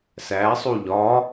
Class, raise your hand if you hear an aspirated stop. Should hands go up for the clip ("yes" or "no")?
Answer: no